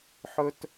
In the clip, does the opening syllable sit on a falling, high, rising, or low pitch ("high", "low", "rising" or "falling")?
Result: high